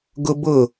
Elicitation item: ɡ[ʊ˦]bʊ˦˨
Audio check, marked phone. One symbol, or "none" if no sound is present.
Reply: ʊ˦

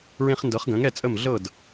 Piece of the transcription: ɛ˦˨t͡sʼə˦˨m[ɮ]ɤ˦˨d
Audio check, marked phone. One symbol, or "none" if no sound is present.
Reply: ɮ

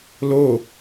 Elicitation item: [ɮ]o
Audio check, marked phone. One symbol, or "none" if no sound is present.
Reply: l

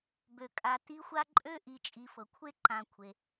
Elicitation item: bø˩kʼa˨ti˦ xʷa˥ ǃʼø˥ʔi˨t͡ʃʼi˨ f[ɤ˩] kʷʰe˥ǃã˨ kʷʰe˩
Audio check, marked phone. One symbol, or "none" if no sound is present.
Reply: ɤ˩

